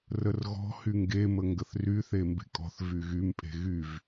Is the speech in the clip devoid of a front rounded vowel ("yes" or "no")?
no